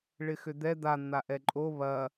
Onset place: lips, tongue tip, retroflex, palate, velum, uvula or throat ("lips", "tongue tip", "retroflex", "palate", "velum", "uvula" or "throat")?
retroflex